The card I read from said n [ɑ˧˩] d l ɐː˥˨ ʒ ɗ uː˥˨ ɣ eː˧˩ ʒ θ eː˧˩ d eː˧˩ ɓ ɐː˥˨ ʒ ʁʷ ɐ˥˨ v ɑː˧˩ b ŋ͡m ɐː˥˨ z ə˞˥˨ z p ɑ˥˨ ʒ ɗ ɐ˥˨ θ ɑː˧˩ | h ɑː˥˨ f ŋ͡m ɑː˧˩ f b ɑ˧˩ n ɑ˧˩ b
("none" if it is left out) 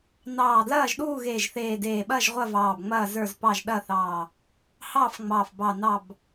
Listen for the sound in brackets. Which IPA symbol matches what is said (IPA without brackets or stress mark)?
ɑː˧˩